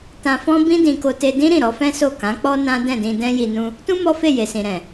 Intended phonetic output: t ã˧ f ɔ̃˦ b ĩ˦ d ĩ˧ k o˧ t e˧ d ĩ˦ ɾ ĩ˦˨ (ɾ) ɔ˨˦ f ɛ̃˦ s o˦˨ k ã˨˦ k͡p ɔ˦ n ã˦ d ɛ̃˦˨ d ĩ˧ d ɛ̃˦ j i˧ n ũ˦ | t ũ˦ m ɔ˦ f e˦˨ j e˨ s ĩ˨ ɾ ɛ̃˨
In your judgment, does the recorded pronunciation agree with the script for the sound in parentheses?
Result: yes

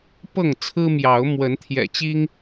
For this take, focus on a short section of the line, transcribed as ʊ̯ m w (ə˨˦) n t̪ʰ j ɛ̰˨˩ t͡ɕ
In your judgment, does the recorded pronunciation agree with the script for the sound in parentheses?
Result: yes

